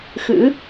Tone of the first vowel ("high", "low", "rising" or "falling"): rising